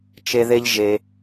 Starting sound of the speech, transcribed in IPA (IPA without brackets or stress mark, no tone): t͡ʃ